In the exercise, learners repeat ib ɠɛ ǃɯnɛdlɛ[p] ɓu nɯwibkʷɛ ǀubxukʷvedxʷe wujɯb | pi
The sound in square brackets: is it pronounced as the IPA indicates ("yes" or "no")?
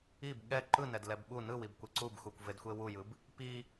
no